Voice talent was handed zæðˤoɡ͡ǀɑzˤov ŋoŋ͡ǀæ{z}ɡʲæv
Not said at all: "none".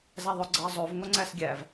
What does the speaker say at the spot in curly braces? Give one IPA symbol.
s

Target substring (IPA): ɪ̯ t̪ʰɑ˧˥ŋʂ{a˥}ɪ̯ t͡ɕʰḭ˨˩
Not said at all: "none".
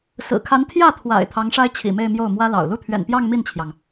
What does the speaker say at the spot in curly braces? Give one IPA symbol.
a˥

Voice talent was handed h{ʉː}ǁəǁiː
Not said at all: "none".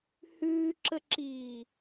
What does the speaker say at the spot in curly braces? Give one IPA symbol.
ʉː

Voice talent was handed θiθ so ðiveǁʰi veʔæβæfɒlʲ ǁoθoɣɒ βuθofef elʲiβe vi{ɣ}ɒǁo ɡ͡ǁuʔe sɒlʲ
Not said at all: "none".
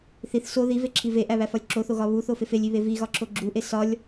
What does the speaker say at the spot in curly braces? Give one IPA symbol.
ɣ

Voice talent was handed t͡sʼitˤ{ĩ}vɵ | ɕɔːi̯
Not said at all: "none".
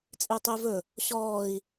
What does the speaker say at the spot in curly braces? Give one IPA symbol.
i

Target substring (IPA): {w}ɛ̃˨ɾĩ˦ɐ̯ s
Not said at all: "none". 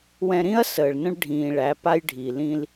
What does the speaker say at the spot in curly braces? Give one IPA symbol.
w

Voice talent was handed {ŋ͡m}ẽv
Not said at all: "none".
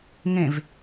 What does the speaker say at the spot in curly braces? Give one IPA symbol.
ŋ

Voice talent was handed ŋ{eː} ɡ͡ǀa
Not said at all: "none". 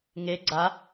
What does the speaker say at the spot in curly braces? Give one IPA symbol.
e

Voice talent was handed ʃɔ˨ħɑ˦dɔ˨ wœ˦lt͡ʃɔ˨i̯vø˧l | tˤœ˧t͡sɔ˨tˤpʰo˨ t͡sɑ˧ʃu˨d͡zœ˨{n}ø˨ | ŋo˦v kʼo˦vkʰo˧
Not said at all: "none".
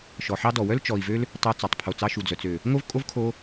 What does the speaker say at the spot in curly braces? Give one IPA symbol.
t͡s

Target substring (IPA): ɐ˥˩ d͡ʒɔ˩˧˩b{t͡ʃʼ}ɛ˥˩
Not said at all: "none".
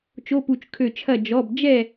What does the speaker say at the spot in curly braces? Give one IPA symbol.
d͡ʒ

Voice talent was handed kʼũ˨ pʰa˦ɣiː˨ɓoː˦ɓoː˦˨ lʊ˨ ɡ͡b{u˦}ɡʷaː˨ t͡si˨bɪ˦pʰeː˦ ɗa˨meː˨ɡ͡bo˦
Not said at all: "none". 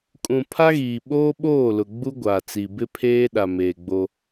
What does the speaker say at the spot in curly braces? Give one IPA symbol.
u˦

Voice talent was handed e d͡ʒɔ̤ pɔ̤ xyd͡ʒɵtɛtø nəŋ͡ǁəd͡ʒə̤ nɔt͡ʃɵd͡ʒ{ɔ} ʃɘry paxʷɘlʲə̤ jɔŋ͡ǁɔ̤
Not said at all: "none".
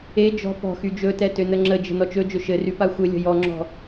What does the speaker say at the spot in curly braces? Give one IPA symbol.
ɵ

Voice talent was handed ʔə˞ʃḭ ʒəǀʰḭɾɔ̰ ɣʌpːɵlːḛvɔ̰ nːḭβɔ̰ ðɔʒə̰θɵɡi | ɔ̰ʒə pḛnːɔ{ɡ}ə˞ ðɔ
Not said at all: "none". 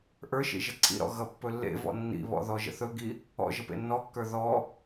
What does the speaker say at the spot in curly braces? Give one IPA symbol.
kː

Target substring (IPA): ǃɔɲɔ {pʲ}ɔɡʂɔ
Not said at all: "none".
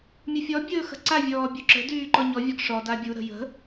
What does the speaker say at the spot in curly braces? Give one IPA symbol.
vʲ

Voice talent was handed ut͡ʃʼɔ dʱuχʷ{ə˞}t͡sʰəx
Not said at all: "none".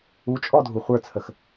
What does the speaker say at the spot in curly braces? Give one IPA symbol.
ə˞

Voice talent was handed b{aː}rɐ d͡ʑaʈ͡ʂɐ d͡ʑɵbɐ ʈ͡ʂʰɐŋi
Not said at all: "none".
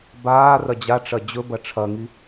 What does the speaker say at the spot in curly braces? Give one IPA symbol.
aː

